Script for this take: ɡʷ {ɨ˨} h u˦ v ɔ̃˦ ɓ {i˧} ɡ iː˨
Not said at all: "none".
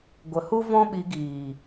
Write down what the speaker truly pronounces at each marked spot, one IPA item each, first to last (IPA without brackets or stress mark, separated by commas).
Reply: ə˨, i˧